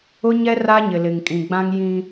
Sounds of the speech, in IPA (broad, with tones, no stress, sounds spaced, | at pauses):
ʊ˦ ɲ ɛ˦ r a˦ ɲ ɪ˨ l ɪ˨ ŋ kʼ ĩ˨ ɡ͡b ã˦ ŋ j ĩ˦